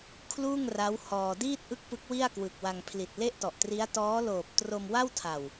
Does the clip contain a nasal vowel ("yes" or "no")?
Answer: no